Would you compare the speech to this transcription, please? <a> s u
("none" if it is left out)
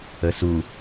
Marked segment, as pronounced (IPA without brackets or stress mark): ə